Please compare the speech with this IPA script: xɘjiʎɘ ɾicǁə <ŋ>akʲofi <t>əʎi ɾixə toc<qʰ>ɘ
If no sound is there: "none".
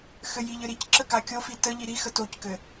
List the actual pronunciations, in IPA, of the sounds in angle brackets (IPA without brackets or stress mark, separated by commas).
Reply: k, t, k